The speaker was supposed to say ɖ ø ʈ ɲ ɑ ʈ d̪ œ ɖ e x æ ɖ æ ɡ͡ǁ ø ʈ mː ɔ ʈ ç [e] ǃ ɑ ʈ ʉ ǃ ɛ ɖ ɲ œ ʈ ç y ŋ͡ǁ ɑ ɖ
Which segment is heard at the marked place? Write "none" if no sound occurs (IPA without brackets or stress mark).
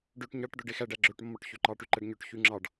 ø